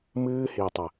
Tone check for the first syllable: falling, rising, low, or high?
high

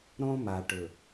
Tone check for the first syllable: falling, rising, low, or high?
high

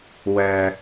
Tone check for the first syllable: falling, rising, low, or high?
low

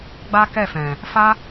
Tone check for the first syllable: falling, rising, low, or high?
high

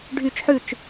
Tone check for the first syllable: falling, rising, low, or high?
falling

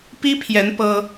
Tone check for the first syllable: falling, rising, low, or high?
high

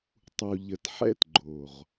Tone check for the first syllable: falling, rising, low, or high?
low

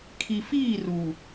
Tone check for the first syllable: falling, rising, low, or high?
low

